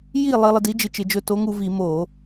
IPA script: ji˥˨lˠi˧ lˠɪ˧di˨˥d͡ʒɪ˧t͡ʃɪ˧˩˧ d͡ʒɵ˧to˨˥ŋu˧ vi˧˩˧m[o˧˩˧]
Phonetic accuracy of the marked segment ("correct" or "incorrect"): correct